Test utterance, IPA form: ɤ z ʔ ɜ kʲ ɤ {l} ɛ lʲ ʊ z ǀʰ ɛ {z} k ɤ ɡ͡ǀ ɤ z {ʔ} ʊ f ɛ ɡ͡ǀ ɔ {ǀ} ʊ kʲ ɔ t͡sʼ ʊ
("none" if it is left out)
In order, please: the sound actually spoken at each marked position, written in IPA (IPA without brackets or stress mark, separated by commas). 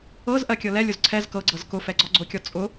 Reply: l, z, k, ɡ͡ǀ